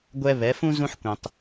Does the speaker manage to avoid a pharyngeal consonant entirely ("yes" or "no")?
no